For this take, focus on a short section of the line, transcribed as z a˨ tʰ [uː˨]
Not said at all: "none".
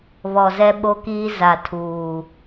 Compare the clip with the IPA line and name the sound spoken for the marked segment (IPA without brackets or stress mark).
uː˨